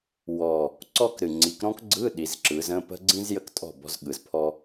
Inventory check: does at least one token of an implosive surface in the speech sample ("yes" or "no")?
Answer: yes